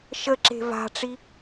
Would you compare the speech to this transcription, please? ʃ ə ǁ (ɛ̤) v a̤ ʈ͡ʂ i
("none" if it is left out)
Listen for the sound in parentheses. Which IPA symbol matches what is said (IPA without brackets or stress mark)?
e̤